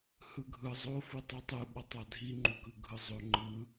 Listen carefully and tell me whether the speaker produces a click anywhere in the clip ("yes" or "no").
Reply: yes